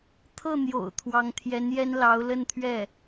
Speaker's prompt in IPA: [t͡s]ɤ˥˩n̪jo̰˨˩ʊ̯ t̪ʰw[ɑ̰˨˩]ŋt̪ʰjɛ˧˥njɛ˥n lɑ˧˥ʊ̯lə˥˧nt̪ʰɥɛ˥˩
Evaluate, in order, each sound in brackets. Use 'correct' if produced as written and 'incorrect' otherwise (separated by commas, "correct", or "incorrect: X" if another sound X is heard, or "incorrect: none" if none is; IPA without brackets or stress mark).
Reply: incorrect: t̪ʰ, incorrect: ɑ˧˥